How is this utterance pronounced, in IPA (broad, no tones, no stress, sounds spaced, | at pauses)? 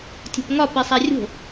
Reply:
tʲ o̤ p ŋ ɒ p i sˤ æ rʲ o̤